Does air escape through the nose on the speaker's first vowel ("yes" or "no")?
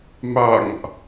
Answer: no